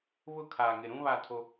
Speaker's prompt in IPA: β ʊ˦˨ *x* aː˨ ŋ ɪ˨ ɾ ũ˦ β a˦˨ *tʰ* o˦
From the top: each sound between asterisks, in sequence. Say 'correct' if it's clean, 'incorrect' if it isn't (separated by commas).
incorrect, correct